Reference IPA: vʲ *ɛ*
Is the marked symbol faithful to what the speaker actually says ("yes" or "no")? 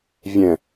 no